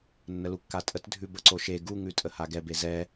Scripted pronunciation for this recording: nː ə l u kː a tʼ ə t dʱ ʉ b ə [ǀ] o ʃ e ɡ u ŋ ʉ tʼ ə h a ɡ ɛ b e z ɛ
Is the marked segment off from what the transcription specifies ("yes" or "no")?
no